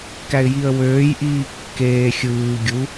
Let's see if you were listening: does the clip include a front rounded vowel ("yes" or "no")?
yes